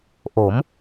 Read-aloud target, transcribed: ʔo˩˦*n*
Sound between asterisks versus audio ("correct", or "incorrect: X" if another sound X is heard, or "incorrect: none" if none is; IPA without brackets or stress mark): incorrect: m